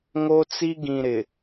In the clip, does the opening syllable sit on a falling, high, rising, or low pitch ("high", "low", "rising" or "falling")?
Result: high